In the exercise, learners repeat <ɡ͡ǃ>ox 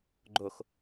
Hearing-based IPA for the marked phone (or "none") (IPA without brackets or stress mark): ɡ͡ǃ